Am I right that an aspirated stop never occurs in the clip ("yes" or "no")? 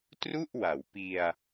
yes